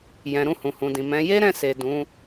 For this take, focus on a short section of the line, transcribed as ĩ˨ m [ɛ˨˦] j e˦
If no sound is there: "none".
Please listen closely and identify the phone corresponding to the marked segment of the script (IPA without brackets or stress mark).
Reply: ɛ̃˨˦